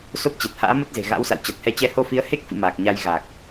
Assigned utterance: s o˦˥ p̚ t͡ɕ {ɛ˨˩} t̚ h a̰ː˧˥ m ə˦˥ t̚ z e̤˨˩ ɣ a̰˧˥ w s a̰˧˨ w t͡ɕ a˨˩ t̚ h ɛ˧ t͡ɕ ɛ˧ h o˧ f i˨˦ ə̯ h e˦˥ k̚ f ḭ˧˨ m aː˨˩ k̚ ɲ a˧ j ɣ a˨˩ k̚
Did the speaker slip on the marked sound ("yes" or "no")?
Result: no